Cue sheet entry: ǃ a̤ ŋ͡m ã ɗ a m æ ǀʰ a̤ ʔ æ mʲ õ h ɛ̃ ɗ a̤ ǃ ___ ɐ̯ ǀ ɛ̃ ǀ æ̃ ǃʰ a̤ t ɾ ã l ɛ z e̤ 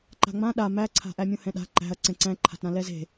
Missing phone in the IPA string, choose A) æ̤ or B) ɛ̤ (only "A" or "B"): A